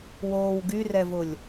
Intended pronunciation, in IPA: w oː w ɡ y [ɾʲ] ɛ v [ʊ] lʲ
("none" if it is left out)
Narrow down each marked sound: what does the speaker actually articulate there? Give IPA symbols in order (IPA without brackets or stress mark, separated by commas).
r, ʊ